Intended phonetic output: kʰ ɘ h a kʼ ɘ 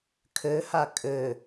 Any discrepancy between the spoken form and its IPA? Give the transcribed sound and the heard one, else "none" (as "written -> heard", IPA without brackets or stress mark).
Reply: none